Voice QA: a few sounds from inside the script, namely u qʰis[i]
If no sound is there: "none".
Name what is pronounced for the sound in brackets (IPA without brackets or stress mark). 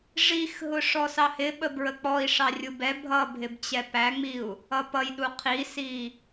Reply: i